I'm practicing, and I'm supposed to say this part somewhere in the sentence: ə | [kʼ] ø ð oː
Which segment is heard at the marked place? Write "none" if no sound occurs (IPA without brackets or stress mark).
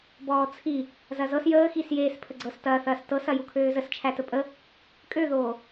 kʼ